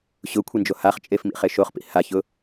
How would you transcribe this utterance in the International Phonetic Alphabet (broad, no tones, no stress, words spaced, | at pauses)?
ɕʊkʷʰind͡ʒo haχt͡ʃʼefmḭ χeʃoχpḭ haçʊ